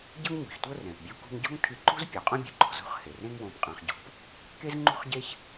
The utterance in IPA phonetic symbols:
ɟ ɤ˥ ŋ ɲ ṳ˩ ç tʷ ɤ˥ r ɛ̃˩ p bʲ u˧ k ṳ˧ ŋ ɟ ɔ̤˥ ŋ tʰ i˧ ǃ ṳ˥ z pʲ ɔ˩ qʼ õ˥ bʲ ṳ˩ ǃ ɔ̤˩ z o̤˥ χ h e˩ r ẽ˥ ŋ w õ˧ p qʼ ã˧ χ ɟ ɔ̤˧ p | k e˥ z ŋ͡ǃ ṳ˥ χ ɟ e˥ ç

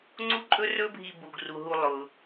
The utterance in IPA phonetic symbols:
ŋ͡ǀ u˥ ǃʼ ɵ˥ r ɵ˥ bʱ i˧ b u˩ ɡ r u˩ ɦ u˧ lˠ ʊ˩

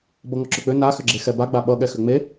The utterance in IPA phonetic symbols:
b ʌ ŋ ɔ ǁ ʏ k͡p ʏ n a x ʏ ɡ͡ǁ e x ɛ b a ɡ͡b a ɓ ʌ ɠ ɛ x ʏ ŋ͡m e

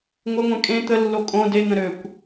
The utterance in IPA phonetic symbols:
ŋʷ ə ŋʷ ɛ̃ kʼ ẽ t̪ ə lː o kʼ õ d e n̪ ə̃ ɾ ø kʷ

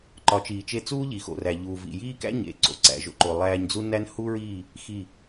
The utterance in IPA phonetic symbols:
ǃ ɒ˨˦ t͡ʃ iː˨ t͡ʃ e˧ t͡s uː˦ ʎ i˨ x o̰˨ r æ˨ ʎ uː˨ v ḭ˨ j iː˦ k æ̰˦ ɲ ḛ˨ ǀ o̰˨ ǀ æ̰˨ ʒ o̰˧ ǃ o˨ lˠ æː˧ ɲ d͡z u˦ n æ˦ n h u˦ ɹ iː˦˨ | x i˦˨

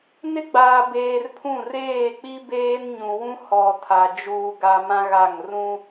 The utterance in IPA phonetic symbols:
n ɪ˦ ɡ͡b aː˨ b eː˨ r pʰ ũ˦˨ r eː˦˨ k͡p i˦ b eː˦ n ɲ ũ˨ w ũ˦ h ɔ˨ tʰ a˨ d͡ʒ uː˨ ɡ a˨ m ã˦ ɣ a˦˨ ŋ r ũ˦

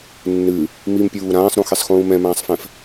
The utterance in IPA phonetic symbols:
nː ɨ | m i m pʲ uː ɾ ãː sˤ ɾ ũ x e sˤ x ũː m ɛ̃ m ãː sˤ f ɛ̃ f

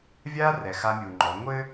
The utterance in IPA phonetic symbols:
vʲ a˦ r ɛ˨ x a˦ mʲ u˨ ŋ͡ǃ ɔ˨˦ ŋʷ ɘ˦

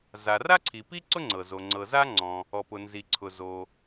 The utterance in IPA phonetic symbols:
z a˩ r a˥ ǀʰ i˩ p i˥ ǀ ʊ˥ ŋ͡ǀ ɤ˩ z o˩ ŋ͡ǀ ɤ˩ z a˥ ŋ͡ǀ ɔ̃˩ | ɔ˩ p ʊ˩ n z i˩ ǀʰ ʊ˩ z o˩

